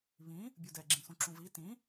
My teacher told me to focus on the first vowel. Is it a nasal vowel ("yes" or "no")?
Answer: yes